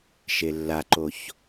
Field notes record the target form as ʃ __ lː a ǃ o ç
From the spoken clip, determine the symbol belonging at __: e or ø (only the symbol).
e